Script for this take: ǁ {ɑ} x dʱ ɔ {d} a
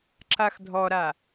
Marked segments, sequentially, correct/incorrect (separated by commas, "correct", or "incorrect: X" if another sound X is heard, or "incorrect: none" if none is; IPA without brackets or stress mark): incorrect: a, incorrect: ɾ